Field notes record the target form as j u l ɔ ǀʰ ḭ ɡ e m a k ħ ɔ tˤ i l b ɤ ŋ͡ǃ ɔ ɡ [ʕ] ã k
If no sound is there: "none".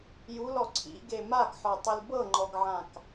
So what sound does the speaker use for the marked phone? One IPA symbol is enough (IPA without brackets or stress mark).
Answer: ʕ